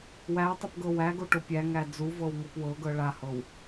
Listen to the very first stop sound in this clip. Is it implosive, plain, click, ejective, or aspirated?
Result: plain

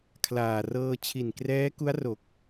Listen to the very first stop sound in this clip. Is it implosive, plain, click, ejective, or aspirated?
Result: aspirated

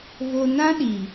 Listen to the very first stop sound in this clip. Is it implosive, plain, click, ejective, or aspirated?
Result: implosive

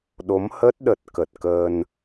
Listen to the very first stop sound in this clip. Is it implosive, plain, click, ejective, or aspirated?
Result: implosive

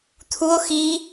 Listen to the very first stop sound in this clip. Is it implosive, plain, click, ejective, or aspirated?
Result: aspirated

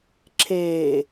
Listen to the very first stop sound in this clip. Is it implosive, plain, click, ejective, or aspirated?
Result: click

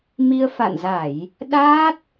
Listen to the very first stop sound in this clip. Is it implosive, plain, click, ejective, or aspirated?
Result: implosive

